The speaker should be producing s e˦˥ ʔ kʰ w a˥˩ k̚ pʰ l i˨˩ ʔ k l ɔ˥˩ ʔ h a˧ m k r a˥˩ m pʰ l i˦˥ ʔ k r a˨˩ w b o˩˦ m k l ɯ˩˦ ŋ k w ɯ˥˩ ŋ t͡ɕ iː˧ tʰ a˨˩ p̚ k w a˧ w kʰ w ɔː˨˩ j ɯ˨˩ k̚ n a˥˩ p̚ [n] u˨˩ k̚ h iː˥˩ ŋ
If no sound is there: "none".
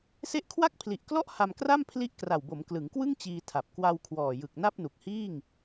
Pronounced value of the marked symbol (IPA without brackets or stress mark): n